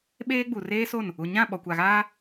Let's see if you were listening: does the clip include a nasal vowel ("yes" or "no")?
yes